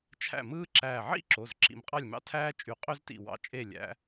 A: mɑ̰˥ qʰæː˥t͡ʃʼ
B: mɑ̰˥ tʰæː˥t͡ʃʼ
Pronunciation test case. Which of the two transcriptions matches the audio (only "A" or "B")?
B